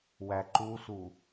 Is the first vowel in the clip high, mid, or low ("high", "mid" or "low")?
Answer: low